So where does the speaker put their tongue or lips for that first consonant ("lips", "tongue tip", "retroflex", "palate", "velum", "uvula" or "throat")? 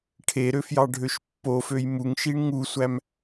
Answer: retroflex